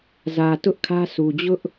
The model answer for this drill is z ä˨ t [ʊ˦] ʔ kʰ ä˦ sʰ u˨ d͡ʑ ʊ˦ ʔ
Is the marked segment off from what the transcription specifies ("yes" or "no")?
no